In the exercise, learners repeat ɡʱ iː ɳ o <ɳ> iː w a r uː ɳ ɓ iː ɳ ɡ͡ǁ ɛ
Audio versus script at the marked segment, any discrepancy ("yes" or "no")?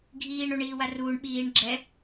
no